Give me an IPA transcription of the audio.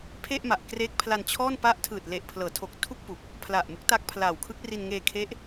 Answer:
pʰ e˥˩ ʔ m a˨˩ ʔ k r eː˦˥ k̚ pʰ l a˧ n t͡ɕʰ ɔː˥˩ n p a˦˥ ʔ tʰ ɯː˨˩ t̚ l e˨˩ ʔ pʰ l ɤː˩˦ tʰ o˨˩ k̚ tʰ u˥˩ k̚ p u˨˩ k̚ | pʰ l a˨˩ ʔ m u˦˥ k̚ t a˦˥ k̚ pʰ l aː˨˩ w kʰ ɯ˦˥ k̚ r i˧ n ŋ eː˧ kʰ e˦˥ ʔ

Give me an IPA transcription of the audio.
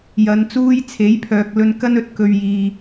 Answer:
j ɐ˨˧ n t͡s uː˥ j t͡sʰ e˨˥ j pʰ œː˨ k̚ l ɵ˧ n k ɐ˥ n ɵ˨˥ t̚ k ɵ˨ ɥ j iː˨

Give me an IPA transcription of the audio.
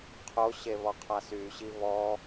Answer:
qʰ o ɕ e β ɔ qʰ a s y ɕ i β ɔ

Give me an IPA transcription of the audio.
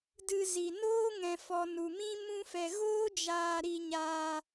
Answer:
d ɨ˧ z i˨ n oː˦ ŋ ɛ̃˨ f ɔ˨ n u˨ m ĩ˦ m ũ˦ f ɛ˧ ɣ oː˦ d͡ʒ aː˧ ɾ i˧ ɲ aː˧

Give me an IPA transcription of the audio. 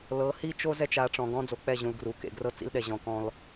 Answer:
l ɤ˨˦ h i˦ t͡ʃ o˦ z ɛ˦ t͡ʃ a˨˦ ʈ͡ʂ ɔ̃˨ ɡ ɔ̃˦ d͡z o˨ k͡p ɛ˦˨ ʑ ũ˨ l ɡ r u˨ k ḛ˨ ɡ r ɤ˦ t͡s ḭ˦ l ɗ ɛ˨ ʑ ɔ̃˨ k ɔ̃˦ l

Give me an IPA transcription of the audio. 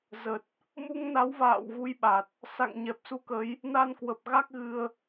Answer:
z ə˨˩ t̚ | m u˧ ŋ n a˨˦ w v a̰ː˧˨ w ɣ u˨˦ j ɓ a˨˩ t̚ | s a̰˧˨ ŋ ɲ ɛ˨˩ p̚ s u˧ k ə˨˦ j | n a˧ n k w ə˨˩ p̚ ɣ a˦˥ k̚ ɣ ɨ˧ ə̯

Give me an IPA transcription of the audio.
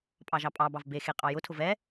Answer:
pʼ ɑ ʒ ɑ pʼ ɑ b ɑ v b e x e qʼ ɑ j ʊ tʰ ʊ v ɛ

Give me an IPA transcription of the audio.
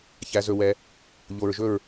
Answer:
ç æ˩˧ z ɵ˩ w ɛ˩ | ʎ o˩ ɹ ʒ ɵ˧˩ ɹ

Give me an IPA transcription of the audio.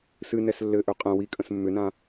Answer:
s ɨ n ɛ s lː ɘ ʔ ø qʼ ɛ̃ w i kʼ ə̃ s mː ʏ n ã

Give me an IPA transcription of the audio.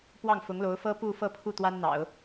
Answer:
p w ɑ˥˩ ŋ f ʊ˧˥ ŋ l o˧˥ ʊ̯ f ɤ˥ p u˥˧ f ɤ˥˧ pʰ u˥˩ t̪ w a˥ n n̪ ɑ̰˨˩˦ ʊ̯

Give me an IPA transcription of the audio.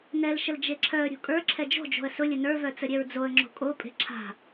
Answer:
n ɛ l ʃ ə l d͡ʒ e ǁʰ œ ə̯ ɾʲ o̤ kʼ ə˞ ǁʰ ɛ d͡ʒ o̤ d͡ʒ o̤ ə̯ s ʊ lʲ ə n ə˞ v œ t͡s ə ɾʲ ɛ ɹ d͡z o ə̯ ŋ͡ǁ o̤ kʼ o pʼ e̤ ǁʰ a̤

